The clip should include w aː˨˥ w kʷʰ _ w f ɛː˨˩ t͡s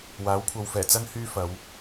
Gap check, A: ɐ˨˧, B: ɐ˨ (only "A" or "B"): B